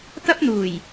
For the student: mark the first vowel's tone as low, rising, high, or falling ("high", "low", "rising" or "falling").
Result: high